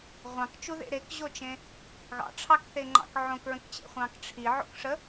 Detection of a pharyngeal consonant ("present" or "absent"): present